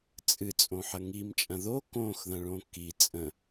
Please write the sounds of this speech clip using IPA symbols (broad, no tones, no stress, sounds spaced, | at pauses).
t͡sʼ ɨ t͡sʼ õ ħ ɐ ŋ i m t͡ʃʼ ɐ̃ ð o k õ x ð ɐ̃ ɭ õ k i t͡sʼ ə̃